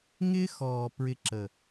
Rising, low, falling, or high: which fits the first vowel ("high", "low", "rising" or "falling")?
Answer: high